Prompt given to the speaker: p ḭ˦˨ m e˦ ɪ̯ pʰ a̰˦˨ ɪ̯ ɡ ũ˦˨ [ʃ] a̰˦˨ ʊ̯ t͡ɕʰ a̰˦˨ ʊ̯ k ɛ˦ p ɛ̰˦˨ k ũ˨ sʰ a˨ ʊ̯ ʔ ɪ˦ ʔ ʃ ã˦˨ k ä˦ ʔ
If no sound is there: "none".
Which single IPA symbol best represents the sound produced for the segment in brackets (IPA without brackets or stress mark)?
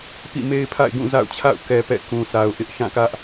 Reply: z